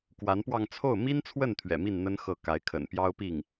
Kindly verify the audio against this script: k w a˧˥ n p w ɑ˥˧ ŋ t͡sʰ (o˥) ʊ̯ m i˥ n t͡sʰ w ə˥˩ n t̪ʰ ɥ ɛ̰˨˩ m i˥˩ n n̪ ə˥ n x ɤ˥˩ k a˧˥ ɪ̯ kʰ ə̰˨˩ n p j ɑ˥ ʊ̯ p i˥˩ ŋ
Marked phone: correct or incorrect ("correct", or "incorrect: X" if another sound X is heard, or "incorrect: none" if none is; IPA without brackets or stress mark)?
incorrect: o˥˩